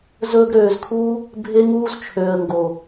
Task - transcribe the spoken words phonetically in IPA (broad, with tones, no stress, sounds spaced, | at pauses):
z ɵː˧ ɡ ɾ øː˨ z kʰ uː˦ | bʱ e˦ ŋ uː˦ z t͡ʃʰ øː˨ ə̯ ŋ ɡ o˨